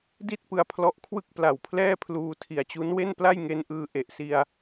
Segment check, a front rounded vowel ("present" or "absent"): absent